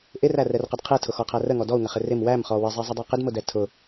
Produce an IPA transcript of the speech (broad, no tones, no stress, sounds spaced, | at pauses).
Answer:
ʔ ɪ r æ r ɛ r q ə d qʰ ɛ tʰ ʊ x ɔ qʰ æ r ə ŋ ɔ d ɔ u̯ ŋ ə χ ɪ r ɪ m w æ m χ ɔ w ɪ zˤ ɛ zˤ ə dˤ ɛ q ɪ d m ʊ d ɛ tʰ ʊ